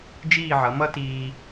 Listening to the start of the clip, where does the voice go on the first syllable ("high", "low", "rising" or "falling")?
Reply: falling